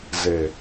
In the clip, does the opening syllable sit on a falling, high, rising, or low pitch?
low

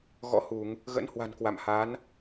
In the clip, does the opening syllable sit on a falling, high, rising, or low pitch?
rising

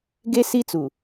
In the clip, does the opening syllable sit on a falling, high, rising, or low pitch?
high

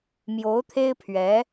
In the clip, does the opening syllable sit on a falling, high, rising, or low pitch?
rising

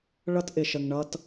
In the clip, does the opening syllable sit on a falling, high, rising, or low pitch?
high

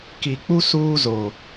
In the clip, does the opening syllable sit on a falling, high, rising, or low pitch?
low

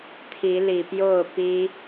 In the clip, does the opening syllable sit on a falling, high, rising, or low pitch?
rising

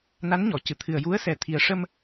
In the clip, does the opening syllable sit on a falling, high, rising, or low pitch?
rising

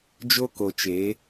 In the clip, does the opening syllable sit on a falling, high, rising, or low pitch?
high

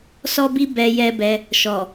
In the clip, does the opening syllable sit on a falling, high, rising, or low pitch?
high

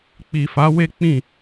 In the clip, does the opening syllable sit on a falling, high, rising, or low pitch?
low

